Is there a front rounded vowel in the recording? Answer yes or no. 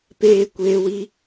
no